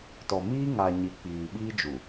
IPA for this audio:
t ɔ˨ m iː˦ ŋ a˨ ɲ i˨ k͡p iː˨ ɓ iː˦ d͡ʒ u˨

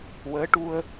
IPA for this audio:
w əː˧˥ ʈ u˧ ə̯

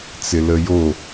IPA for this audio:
t͡s ɪ l ə j o

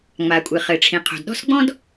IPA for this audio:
ŋ͡m a˩ kʷʼ ɨ˩ χ ɘ˩ ʈ͡ʂʰ ĩ˩ qʰ o̤˩ d ɗ ɔ̤˥ s ɡ͡b ɔ̃˥ d

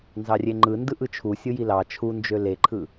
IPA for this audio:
n z ɑ rʲ e ŋ͡ǃ ɯ n d ɯ ʔ ɯ t͡ʃʰ u sʲ ɯ j i l ɑ t͡ʃʰ u n d͡ʒ ø l e ǃʰ ɯ

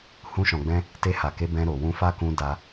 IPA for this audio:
h ũ˧ ʃ ɔ̃˨ ɡ͡b ɛ̃˧ | t e˧ h a˨ k e˨˦ b ɛ̃˧ ɾ o˨ w ũ˧ f a˦ k ũ˧ d a˧

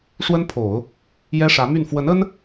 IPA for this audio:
ʂ w ə˥ n pʰ o˨˩˦ ʊ̯ | j ɛ˥ ʂ ä˧˥ m y˥˩ n f w ə˧˥ n ə˥ n

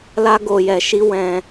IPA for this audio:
l a˧ ɡ o˨ j ɛ˨ ʃ i˧ w ɛ̃˧

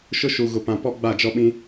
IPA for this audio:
ʃ ʊ˦ ʃ u˨ ɣ ʊ˨ p ã˨ p ɔ˦ ɡ͡b a˦˨ d͡ʒ ɔ˦ ɓ ĩ˦

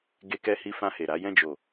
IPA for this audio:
ɡ e˧ k ɛ˧ h i˧ f ã˧ h e˨ ɾ a˨˦ j ɛ̃˦˨ d͡ʒ o˨

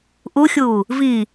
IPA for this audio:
ʔ u xʲ uː | v i

